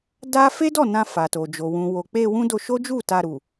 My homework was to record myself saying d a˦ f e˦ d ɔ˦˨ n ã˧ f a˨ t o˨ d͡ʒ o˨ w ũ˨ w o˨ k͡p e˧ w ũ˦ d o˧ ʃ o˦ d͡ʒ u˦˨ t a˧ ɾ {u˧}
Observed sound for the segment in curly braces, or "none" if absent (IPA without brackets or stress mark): u˨